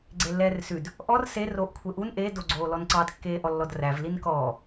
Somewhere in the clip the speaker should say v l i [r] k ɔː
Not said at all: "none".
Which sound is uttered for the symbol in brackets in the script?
n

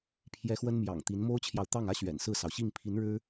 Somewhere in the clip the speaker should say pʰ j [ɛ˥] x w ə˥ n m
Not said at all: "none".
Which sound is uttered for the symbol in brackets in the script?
ɛ˥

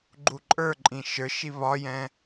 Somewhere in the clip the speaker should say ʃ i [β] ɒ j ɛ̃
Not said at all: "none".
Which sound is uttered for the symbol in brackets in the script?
β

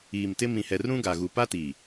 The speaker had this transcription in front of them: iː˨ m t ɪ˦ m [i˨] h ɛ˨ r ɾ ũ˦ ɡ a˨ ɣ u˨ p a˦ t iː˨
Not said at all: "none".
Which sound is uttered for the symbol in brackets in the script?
ĩ˨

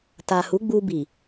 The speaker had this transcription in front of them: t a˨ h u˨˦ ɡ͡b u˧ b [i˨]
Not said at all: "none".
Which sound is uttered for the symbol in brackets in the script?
i˨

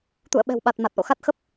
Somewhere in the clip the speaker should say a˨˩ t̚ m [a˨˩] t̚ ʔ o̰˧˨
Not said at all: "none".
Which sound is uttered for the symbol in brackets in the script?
a˨˩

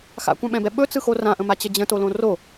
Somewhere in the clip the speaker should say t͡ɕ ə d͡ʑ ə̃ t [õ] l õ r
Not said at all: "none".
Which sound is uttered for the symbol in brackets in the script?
o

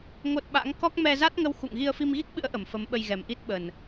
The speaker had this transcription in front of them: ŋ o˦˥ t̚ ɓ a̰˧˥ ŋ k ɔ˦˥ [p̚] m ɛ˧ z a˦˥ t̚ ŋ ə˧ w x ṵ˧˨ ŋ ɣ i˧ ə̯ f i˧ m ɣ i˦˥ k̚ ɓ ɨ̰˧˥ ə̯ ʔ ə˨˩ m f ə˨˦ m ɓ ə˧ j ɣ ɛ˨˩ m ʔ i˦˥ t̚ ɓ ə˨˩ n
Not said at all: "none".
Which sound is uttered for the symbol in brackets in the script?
k̚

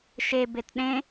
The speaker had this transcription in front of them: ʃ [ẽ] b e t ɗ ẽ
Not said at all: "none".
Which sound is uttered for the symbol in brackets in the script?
e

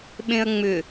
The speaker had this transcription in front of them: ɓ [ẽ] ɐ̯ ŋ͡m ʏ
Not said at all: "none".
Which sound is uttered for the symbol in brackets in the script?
ẽ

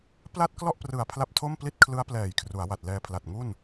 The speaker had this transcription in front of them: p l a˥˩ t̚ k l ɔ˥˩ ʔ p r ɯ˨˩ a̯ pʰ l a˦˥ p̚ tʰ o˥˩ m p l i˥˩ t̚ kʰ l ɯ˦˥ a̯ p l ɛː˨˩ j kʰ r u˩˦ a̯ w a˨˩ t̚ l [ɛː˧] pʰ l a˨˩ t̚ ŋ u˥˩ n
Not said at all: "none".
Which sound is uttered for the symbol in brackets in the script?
ɛː˧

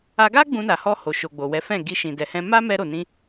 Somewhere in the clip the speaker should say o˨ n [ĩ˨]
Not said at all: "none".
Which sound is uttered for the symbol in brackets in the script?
ĩ˧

